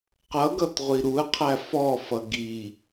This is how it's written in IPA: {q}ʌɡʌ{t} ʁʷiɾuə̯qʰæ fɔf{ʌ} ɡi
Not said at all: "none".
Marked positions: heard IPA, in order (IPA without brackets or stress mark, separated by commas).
q, t, ʌ